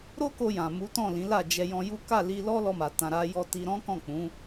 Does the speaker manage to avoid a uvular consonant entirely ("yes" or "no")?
yes